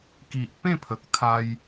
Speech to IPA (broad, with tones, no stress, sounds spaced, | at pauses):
k i˨ ʔ p ẽ˥˧ pʰ ə˨ k̚ t̪ʰ a˧ j